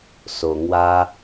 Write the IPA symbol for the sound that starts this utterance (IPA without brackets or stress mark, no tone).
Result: s